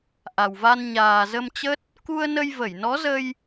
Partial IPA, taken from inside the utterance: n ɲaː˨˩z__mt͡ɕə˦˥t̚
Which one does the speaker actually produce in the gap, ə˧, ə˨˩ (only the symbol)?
ə˧